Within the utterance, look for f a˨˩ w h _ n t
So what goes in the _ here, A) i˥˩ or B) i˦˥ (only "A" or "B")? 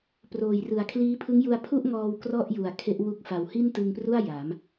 A